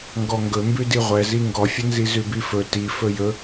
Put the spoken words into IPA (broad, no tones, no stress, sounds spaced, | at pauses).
ŋ ɡ ɔ ŋ ɡ ɵ m b ʉ d i ʁʷ ɛ z i ŋ ɡ ɔ fʲ ə n z i z ʉ b i f ɵ t i f ɵ j ɵ